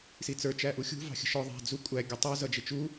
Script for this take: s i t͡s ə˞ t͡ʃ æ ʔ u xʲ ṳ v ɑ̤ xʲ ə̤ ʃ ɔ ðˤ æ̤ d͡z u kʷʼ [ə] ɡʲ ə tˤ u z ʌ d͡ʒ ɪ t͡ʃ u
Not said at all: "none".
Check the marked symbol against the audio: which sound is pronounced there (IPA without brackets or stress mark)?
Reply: æ